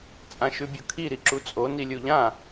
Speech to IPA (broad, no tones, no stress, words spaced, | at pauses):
t͡sʼãʃʉbʲukʰi ɾiǁut͡sʼo nilʲuʎã